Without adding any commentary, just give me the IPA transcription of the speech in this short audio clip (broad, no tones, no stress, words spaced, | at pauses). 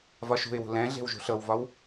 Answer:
vɒʃṳɪ̯wṳ lɛ̃ɮe̤w ʒṳɬɤwvɒw